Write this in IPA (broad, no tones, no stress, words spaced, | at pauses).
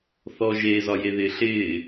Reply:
θɔʒe zɒjeðɪːɬɪː